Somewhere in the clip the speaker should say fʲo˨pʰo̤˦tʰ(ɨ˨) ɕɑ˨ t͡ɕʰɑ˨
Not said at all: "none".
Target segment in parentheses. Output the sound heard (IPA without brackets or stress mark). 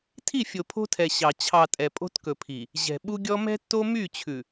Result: ɛ˨